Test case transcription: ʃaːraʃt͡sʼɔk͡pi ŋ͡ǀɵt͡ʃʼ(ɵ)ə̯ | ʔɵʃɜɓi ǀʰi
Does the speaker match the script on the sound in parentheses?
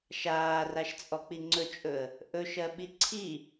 yes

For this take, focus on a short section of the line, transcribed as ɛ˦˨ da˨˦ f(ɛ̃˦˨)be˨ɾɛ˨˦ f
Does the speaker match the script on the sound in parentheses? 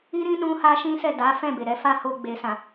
yes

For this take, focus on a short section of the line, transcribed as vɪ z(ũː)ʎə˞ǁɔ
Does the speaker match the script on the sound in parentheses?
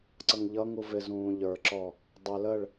yes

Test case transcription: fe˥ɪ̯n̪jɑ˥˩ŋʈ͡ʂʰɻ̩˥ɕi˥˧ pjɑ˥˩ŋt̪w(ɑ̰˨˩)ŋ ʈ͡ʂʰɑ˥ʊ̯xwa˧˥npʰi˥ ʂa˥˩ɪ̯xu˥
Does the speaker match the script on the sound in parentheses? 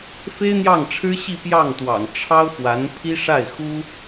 yes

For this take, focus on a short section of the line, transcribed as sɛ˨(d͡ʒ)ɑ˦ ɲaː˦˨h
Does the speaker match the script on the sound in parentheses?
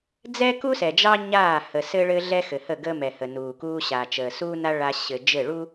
yes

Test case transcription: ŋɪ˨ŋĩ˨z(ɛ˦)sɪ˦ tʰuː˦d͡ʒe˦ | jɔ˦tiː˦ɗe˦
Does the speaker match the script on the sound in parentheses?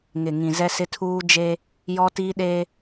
yes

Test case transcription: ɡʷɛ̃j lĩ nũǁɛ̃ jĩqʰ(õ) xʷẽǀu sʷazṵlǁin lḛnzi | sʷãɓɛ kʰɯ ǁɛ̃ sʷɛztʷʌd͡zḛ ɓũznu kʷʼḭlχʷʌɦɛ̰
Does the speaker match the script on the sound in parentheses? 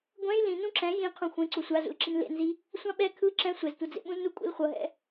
no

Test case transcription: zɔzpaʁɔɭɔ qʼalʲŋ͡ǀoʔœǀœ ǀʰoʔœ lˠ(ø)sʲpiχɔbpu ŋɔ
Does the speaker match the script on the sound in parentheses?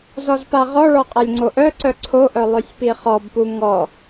yes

